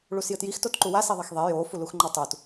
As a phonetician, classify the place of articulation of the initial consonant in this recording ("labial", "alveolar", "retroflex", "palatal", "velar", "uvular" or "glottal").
retroflex